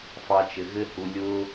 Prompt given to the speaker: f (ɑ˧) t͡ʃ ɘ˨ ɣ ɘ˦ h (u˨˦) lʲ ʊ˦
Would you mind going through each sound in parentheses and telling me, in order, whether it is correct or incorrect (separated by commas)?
correct, incorrect